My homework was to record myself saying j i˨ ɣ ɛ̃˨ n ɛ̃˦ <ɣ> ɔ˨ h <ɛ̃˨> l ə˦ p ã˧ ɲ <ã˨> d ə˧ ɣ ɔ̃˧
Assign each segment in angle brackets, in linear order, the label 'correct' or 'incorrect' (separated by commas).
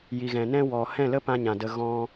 incorrect, incorrect, correct